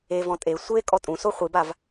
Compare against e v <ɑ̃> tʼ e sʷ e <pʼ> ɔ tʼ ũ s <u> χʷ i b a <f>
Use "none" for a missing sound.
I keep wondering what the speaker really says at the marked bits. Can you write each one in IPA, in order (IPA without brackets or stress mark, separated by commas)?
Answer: ɔ̃, kʼ, o, v